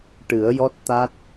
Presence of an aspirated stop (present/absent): absent